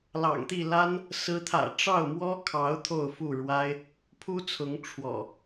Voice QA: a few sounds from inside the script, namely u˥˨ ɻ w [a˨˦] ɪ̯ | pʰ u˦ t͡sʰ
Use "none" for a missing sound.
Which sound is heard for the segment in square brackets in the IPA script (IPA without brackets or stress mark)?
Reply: a˦